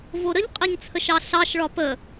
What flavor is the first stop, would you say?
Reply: ejective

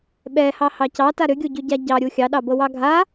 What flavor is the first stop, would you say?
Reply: implosive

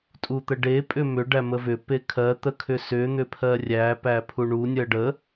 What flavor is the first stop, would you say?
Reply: ejective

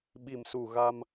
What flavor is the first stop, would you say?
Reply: implosive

